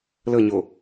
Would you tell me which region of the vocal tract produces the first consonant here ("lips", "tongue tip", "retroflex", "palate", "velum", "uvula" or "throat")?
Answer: tongue tip